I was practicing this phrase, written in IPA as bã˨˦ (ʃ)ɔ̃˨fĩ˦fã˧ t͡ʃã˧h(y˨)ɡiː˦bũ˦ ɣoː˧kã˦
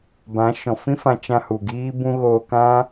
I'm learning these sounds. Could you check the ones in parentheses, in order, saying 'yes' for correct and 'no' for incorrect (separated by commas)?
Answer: yes, no